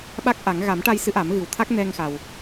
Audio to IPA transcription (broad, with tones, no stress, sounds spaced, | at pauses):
ɓ a˦˥ k̚ ʔ a˨˩˦ ŋ ɣ a˨˩˦ m ʈ a˧ j s ɨ˧˥ ʔ a˨˩˦ m ɣ ɨ˨˩ w t̪ʰ a˦˥ k̚ n ɛ˧ ŋ x a˨˩ w